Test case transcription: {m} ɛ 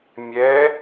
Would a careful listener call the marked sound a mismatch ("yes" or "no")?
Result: yes